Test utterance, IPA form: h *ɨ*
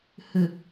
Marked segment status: correct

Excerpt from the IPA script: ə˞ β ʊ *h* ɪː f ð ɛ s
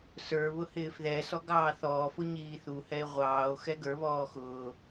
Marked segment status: correct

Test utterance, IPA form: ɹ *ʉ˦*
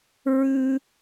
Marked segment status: correct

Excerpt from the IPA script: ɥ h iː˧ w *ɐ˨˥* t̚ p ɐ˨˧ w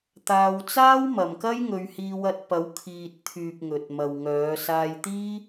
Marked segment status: incorrect: ɐ˧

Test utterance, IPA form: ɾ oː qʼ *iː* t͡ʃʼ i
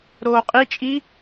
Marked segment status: incorrect: i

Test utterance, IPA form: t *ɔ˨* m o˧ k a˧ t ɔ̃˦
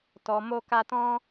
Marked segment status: correct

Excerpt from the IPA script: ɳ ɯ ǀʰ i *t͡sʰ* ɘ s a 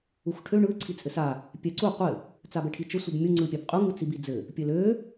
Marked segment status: incorrect: t͡sʼ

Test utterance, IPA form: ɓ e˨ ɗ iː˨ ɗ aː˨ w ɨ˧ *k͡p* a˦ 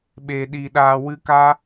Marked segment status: incorrect: k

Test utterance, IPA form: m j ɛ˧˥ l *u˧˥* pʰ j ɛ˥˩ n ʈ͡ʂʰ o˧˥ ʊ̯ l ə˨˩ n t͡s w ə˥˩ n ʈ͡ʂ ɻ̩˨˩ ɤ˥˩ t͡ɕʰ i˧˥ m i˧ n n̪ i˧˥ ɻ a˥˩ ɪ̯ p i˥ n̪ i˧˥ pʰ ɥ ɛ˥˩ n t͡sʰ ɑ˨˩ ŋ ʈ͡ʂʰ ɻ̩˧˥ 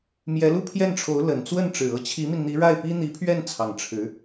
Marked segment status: incorrect: u˥˧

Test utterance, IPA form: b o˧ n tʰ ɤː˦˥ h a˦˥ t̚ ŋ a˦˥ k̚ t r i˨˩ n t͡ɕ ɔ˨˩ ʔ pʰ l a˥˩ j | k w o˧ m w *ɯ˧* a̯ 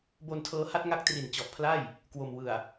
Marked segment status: incorrect: ɯ˨˩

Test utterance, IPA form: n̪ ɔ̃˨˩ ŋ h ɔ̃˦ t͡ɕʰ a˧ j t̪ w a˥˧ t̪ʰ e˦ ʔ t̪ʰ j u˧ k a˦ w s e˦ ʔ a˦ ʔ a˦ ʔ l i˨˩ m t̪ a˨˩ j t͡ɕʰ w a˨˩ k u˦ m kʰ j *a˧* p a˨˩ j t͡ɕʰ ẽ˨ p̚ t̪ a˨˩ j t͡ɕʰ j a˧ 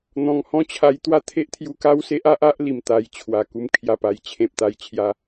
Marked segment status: incorrect: a˨˩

